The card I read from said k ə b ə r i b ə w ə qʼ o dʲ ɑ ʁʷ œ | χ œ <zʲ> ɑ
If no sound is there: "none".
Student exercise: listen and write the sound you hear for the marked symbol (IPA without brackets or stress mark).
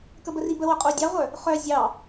zʲ